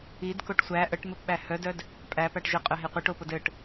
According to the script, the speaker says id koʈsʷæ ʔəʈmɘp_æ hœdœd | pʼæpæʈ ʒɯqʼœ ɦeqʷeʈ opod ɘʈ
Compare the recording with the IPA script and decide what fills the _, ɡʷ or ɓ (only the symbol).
ɓ